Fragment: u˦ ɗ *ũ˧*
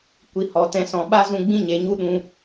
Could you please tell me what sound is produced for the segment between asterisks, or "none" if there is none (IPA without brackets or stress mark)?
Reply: ũ˧